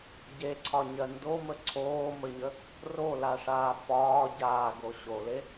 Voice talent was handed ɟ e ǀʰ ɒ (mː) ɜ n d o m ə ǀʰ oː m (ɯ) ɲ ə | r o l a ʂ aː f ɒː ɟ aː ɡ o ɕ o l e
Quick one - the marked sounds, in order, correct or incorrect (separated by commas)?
incorrect, incorrect